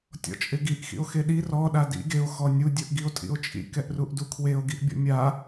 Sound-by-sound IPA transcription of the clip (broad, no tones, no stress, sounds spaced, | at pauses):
tʲ ɔ̰ t͡ʃʼ ɪ ɡ i ʔ x ḭ o̯ x e ɗ i r ɔ ɗ a d ḭ ɡ e o̯ x ɔ nʲ u dʲ u ʔ ɡ i o̯ tʼ ḭ o̯ t͡ʃʼ ḭ k ɛ ʔ r u ʔ d u kʰ w e o̯ ɡ i ʔ bʲ ɔ̰ mʲ a